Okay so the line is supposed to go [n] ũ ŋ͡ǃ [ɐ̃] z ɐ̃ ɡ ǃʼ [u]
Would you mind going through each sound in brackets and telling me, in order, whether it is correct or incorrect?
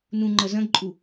correct, incorrect: ɐ, correct

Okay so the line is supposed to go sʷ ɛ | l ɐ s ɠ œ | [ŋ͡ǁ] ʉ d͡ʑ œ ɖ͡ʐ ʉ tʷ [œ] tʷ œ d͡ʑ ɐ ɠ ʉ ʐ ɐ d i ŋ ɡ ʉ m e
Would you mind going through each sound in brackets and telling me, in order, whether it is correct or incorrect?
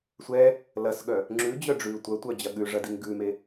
correct, correct

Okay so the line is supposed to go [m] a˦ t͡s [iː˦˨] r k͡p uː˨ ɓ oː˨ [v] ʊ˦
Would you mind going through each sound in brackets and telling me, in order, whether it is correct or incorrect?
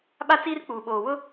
incorrect: ɓ, incorrect: iː˦, incorrect: w

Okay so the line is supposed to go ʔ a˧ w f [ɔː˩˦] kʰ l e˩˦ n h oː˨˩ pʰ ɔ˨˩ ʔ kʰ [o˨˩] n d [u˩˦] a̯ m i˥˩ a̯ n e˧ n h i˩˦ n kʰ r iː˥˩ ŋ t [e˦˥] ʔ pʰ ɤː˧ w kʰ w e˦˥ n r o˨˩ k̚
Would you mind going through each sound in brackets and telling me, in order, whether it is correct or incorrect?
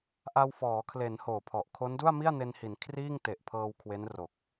correct, incorrect: o˦˥, incorrect: u˥˩, incorrect: e˨˩

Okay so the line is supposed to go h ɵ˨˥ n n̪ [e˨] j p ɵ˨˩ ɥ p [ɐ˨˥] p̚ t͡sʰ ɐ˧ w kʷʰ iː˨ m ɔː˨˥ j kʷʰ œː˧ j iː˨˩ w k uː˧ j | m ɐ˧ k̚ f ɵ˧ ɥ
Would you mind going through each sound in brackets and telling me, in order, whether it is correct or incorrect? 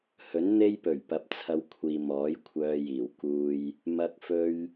incorrect: e˥, incorrect: ɐ˨

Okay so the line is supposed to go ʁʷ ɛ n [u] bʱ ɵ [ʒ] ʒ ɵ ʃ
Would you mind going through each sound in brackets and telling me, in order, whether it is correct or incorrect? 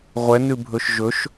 incorrect: ʉ, incorrect: ʃ

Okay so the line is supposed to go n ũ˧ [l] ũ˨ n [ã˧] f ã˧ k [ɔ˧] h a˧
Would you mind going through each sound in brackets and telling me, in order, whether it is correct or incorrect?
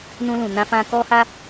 correct, correct, correct

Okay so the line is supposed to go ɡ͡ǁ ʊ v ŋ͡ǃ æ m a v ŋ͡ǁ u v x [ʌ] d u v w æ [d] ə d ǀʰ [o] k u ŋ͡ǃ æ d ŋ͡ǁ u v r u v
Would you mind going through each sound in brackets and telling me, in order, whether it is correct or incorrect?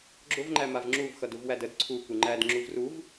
correct, correct, incorrect: u

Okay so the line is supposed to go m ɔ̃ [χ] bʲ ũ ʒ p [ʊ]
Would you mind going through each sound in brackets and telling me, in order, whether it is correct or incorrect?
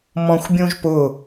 incorrect: xʷ, correct

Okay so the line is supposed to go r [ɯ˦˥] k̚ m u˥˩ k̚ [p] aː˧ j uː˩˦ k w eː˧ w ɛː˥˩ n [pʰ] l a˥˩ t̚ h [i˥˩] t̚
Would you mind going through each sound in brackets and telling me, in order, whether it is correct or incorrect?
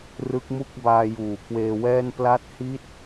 correct, incorrect: b, incorrect: p, correct

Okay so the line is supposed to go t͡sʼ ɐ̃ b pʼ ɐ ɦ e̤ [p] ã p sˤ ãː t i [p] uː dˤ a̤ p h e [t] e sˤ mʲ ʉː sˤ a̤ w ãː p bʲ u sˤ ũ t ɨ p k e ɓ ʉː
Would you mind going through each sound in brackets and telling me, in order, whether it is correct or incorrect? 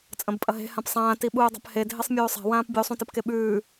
incorrect: h, incorrect: ɓ, incorrect: dʱ

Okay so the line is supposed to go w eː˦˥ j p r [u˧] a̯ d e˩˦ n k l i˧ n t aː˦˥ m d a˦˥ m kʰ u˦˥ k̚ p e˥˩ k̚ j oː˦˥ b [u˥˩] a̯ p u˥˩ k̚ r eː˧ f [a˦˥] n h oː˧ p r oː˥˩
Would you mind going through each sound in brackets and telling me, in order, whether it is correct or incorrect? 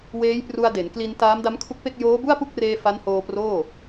correct, correct, correct

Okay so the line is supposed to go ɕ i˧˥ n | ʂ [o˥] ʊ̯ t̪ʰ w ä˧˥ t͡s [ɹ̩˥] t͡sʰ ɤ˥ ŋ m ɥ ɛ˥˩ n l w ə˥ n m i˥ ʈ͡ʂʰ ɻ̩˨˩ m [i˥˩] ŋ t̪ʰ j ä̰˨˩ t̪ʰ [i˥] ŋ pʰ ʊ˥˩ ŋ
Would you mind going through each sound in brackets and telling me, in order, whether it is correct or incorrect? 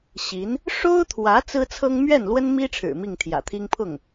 correct, correct, correct, correct

